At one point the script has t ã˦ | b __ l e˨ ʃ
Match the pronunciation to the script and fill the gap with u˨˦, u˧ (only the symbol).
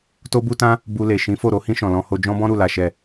u˧